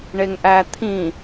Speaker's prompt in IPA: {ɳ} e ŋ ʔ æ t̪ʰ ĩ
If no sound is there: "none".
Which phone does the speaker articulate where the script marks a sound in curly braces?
ɳ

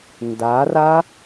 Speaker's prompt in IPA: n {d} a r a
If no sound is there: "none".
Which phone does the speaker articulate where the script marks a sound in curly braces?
d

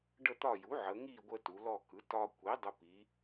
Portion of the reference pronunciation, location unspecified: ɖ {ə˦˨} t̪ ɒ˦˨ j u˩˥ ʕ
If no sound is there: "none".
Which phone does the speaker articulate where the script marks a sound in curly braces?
ə˦˨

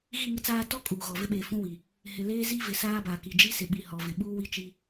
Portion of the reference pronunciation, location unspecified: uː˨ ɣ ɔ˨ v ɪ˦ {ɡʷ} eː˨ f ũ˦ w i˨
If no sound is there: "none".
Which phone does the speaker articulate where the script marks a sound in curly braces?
ɓ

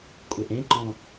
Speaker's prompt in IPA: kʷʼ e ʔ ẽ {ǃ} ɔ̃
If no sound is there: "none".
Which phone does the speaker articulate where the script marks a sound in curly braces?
ǃ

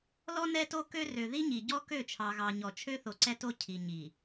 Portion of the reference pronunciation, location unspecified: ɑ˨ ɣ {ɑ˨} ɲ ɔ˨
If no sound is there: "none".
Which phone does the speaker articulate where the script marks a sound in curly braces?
ɑ˨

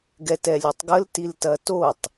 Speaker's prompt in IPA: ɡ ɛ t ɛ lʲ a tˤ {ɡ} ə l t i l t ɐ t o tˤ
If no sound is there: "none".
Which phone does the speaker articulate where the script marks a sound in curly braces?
ɡ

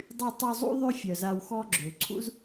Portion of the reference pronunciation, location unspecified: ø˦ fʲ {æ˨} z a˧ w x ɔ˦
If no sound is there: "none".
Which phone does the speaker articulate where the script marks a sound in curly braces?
œ˨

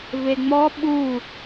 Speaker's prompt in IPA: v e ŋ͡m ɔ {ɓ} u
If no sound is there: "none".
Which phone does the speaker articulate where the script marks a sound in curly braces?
ɓ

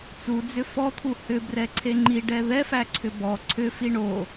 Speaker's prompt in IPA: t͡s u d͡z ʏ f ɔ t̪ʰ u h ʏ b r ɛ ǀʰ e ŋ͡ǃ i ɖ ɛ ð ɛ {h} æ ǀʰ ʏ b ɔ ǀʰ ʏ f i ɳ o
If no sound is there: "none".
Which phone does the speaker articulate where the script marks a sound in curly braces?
f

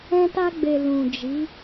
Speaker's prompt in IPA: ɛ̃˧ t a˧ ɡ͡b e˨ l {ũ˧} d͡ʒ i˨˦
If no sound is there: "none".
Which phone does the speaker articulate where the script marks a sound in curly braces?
ũ˨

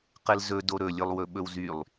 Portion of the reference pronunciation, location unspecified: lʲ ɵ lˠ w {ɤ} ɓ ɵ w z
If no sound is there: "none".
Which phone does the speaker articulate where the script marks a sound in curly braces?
ɵ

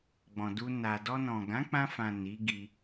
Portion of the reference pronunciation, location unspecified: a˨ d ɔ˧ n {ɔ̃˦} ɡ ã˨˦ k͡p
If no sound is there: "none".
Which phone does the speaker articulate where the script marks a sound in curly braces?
ɔ̃˨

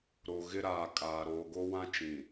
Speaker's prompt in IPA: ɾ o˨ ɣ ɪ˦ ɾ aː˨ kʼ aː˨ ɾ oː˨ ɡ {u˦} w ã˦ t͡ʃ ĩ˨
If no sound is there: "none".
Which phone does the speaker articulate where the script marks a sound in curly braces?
o˦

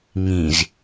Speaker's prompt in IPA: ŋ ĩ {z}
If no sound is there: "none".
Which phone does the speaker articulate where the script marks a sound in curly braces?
z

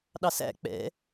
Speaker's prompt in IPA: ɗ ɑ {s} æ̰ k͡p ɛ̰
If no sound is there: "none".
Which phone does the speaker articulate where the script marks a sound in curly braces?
s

